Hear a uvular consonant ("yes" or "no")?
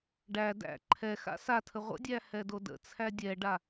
yes